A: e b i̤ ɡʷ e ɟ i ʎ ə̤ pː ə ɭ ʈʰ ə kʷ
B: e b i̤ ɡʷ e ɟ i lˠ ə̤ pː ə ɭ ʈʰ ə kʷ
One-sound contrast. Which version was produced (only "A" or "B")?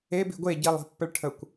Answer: B